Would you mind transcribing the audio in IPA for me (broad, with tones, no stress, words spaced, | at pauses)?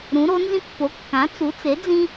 ɾũ˩˥ɾo˩˥nzĩ˥ pːo˩˥ kːã˩˥t͡su˩˥t͡se˩˥ d͡zĩ˥